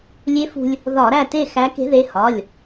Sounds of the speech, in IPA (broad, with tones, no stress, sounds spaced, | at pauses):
lʲ e˧˥ f ṳ˧ lʲ | ð ɒ˧˩˧ ɾ æ˥˨ t e˥˨ x æ˧˥ k e̤˧˥ ð e˩˧˩ h ɒ˩˧˩ lʲ